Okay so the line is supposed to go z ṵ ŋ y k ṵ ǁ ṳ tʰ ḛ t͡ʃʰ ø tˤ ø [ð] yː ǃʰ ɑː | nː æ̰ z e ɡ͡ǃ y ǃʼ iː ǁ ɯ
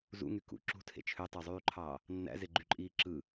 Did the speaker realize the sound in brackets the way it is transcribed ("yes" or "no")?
no